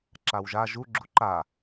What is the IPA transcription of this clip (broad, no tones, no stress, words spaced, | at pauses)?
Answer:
ǁawʒa ʒu ɡ͡ǁuǃa